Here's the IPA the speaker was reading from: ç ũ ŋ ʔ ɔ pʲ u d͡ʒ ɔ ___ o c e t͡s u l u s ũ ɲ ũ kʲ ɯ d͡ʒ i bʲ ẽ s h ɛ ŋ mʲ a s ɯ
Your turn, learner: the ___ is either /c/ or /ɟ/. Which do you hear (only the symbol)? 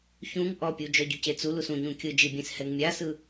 ɟ